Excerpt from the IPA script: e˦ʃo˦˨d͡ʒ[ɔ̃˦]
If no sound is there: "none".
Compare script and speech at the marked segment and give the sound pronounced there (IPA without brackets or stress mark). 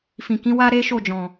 ɔ̃˨